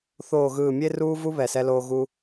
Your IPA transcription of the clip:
θ oː˨˩ ɣ ɯː˨˩ mʲ e˧ r uː˧ v u˧ β ɛ˨˩ s ɛ˧ l oː˧ ɣ u˧

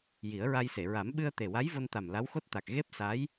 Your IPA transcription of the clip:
j i˨˩˦ ə̯ ɹ a˧ j s e˨˩˨ ɹ a˨˩˦ m ɓ ɨ˧ ə̯ t̪ e˨˩ w a˧˥ j v o˧ n t̪ a˨˩ m l a˧˥ w x o˦˥ t̚ t̪ a˨˩ k̚ ɣ e˦˥ p̚ s a˧˥ j

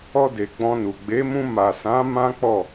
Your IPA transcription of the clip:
ɔ˧ d e˨ ɡ͡b ɔ̃˧ n u˨ ɡ͡b e˨˦ m ũ˧ m a˨ s ã˨˦ m ã˦ k͡p ɔ˦˨

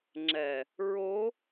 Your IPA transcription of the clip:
ŋ͡ǁ ɛ | ɹ o

